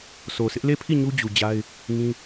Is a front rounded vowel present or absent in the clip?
absent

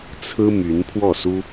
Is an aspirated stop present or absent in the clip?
present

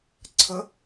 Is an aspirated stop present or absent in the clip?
present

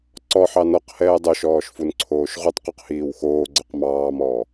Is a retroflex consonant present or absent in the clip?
absent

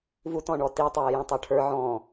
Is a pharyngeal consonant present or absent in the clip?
present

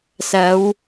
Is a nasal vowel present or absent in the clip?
absent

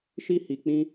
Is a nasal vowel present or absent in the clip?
present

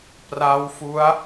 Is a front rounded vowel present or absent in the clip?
absent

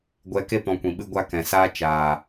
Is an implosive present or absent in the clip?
present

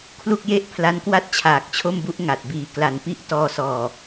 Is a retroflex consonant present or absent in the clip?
absent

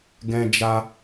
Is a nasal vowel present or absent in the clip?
present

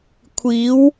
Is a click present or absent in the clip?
absent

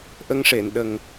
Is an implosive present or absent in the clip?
present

